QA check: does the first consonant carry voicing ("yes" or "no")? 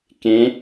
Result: no